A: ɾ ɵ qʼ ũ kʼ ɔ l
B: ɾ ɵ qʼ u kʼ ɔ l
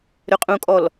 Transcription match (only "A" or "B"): A